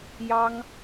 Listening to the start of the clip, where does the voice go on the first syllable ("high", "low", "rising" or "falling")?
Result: high